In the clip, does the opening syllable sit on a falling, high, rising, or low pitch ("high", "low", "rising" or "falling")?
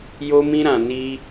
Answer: high